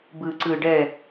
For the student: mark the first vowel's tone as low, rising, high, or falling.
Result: low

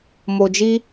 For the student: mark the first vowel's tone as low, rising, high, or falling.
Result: low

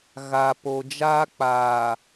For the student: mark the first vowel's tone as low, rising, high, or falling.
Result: low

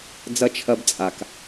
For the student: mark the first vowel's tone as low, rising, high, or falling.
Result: high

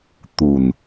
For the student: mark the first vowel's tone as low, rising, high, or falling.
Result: low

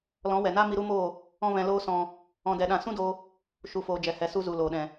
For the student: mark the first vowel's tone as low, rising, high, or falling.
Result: rising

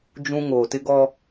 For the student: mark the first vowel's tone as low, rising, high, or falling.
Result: high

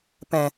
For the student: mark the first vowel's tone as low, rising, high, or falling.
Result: low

